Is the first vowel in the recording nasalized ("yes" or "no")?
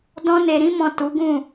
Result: yes